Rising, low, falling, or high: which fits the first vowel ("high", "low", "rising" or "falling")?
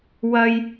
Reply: high